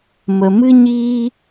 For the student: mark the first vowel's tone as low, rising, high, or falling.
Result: low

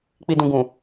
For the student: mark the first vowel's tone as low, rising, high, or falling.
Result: low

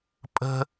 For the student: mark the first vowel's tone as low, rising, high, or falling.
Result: high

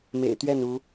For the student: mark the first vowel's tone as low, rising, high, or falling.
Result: low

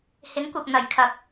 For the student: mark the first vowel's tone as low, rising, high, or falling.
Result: rising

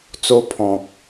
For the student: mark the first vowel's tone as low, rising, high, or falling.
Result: high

